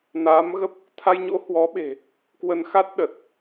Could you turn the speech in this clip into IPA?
n aː˨˦ m ɣ ə˦˥ p̚ | t̪ʰ a˧ j ɲ o̰˧˥ h w ɔ˨˦ ɓ e̤˨˩ | k w ə˧ n x a˦˥ t̚ ɗ ə˨˩ t̚

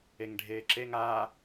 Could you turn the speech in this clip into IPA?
e ŋ ɖʱ eː ǁ e ŋ aː

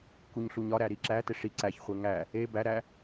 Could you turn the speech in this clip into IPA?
k u ɲ ɬ u ɲ ɒ ɾ æ ɾ i ǁ æ t e ʂ i ǀ æ ç χʷ e ŋ æ | e b æ ɾ æ

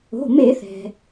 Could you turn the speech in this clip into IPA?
o̤˩˧˩ m e˧˩˧ θ ɛ̤˩

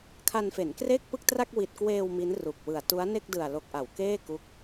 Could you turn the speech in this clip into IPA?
kʰ a˧ n f e˩˦ n k r e˥˩ k̚ p ɯ˥˩ k̚ t r a˥˩ k̚ w i˨˩ t̚ k w eː˧ w m i˦˥ n r u˨˩ k̚ w ɯ˨˩ a̯ t u˦˥ a̯ n e˥˩ k̚ d ɯ˨˩ a̯ l o˨˩ k̚ ʔ a˩˦ w k eː˥˩ k u˦˥ k̚

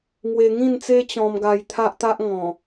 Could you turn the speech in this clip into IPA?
ŋ w e˧ ŋ ĩ˥˧ n t͡s e˦ t͡ɕ ɔ̃˧ m ɡ a˧ j t̪ʰ a˦ ʔ t̪ a˦ ʔ ŋ ɔ̃˨˩

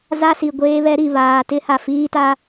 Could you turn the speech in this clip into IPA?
z a˦ s i˨ ɡʷ eː˦ β ɛ˦ ɾ i˨ β aː˨ t ɪ˦ h a˨ f iː˦ t a˦

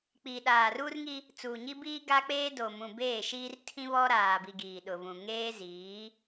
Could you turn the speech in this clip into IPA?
k͡p iː˨ ɗ aː˨ r uː˦ r ŋ i˦ | t͡s uː˨ ɲ i˦ b iː˦ ɡ a˦ k͡p eː˦ d o˨ m ũ˨ b eː˦˨ ʃ iː˦ r tʰ ĩ˦ β ɔ˦ ɾ aː˨ b i˨ ɡ iː˨ ɗ ʊ˨ v ũ˨ ŋ eː˦ z iː˨˦

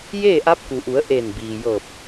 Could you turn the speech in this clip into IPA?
j eː˥˨ ʔ a˧˥ p̚ k u˩ ʔ u˩˧ ə̯ ʔ e˧˩ n b iː˩ j ɤː˧˩ p̚

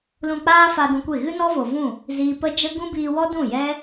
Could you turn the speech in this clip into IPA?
l ũ˧ k͡p aː˦ f a˧ d ũ˧ kʷ e˦˨ ɣ ɨ˦ n ɔ˦ v o˨ v ũ˦˨ | z iː˧ p ə˦ d͡ʒ ə˦ ɡ ũ˦ b iː˧ w ɔ˦ d ũ˦˨ j ɛ˦

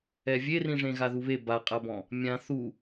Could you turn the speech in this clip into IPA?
ɛ vʲ e r ĩ ʐ ẽ ɣ a ð u β e b a qʼ a b ɔ̃ | mʲ ã θ u

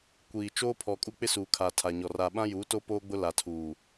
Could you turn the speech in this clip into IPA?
kʷ iː˨ t͡ʃ oː˦ pʰ ɔ˨ kʼ u˦ k͡p ɪ˦ s uː˨ kʰ a˨ tʰ a˨ ɲ ɔ˨ r a˨ ɓ ã˦ j uː˨˦ t o˦ p oː˦ ɡ͡b ʊ˦ l a˨ tʰ uː˨

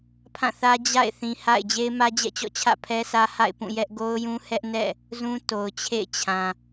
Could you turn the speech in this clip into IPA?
pʰ ã˦˨ θ ä˦ d͡ʑ a̰˦˨ ɪ̯ θ ĩ˨ h a̰˦˨ ɪ̯ d͡ʑ e˦ ɪ̯ m ä˦ d͡ʑ ɛ̰˦˨ t͡ɕ ɔ̰˦˨ t͡ɕʰ ä̰˦˨ pʰ ɛ˦ s ä˦ h a̰˦˨ ɪ̯ p ũ˦˨ j ɛ˦ ʔ ɡ o˦ ʊ̯ j ũ˦ h ɛ˦ ʔ n ɛ̰˦˨ | z ũ˦ t o˨ ʊ̯ t͡ɕʰ ḛ˦˨ ɪ̯ t͡ɕʰ ã˨

